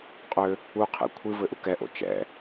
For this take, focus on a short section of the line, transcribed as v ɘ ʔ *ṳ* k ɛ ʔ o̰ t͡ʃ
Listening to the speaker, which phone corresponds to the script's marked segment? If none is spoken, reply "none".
u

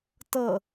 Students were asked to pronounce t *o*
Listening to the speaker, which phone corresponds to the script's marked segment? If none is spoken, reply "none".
ɤ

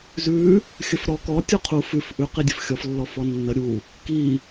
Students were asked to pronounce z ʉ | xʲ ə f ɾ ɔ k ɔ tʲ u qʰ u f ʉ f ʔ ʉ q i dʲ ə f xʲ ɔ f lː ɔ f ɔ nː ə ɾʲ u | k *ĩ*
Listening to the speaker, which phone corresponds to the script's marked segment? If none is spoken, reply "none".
i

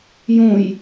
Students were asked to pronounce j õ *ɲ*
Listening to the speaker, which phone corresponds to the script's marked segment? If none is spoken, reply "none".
j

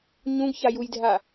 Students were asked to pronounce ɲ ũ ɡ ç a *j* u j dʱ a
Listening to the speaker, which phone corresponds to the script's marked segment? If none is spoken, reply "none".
j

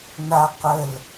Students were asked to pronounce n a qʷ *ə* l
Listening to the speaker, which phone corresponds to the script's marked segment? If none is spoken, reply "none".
ə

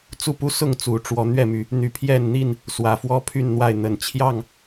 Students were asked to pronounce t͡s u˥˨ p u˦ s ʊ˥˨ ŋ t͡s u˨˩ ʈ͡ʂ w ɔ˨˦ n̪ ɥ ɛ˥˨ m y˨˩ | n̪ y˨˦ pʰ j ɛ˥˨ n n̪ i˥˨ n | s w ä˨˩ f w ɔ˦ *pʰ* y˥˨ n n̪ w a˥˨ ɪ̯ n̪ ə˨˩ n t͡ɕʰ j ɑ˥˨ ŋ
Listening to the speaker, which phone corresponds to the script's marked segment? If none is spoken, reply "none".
pʰ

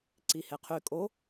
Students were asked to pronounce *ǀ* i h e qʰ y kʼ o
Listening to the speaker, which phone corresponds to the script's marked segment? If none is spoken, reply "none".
ǀ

